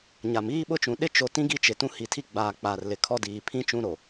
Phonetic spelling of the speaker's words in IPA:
ɲ a˨ m iː˦ ɓ ʊ˦ t͡ʃ ũ˨ ɗ ɪ˦ t͡ʃ o˨ t ĩ˦ ɡ i˦ t͡ʃ ɪ˨ t ũ˦ h i˨ tʰ i˦ ɡ͡b aː˨ k͡p aː˨ r l ɪ˨ kʰ ɔ˦ d iː˨ pʰ ĩ˦ t͡ʃ ũ˦ ɾ o˨

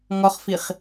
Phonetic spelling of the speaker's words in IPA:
ŋ ɔ χ f i χ

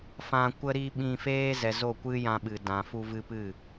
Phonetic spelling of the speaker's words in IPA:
f ã˧ kʷ ə˦ ɾ i˦ ɓ ĩ˧ f eː˦ z ɛ˨ z o˦˨ kʷ ɨ˦ j ã˧ ɓ ɨ˨ d ã˨ f u˧ v ɨ˧ p ɨ˦˨

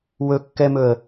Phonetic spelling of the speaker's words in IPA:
w ɵ kː ɛ m ɵ ə̯

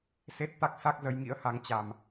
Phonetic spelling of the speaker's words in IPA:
s e˦˥ t̚ t̪ a˦˥ k̚ s a˦˥ k̚ z ə˨˦ j ŋ ḭ˧˥ ə̯ h a˨˦ ŋ t͡ɕ a˨˩ m

